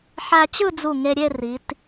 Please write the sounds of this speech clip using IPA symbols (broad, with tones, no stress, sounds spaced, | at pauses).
ħ æ˧ t͡ɕ ɯ˥˧ d͡z u˧˩ ŋ e˧ ɾʲ e˥˧ r i˩˧ t